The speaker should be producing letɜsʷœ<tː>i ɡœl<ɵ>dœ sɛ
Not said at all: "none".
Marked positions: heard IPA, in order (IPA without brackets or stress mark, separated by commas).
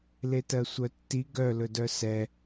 tː, ɵ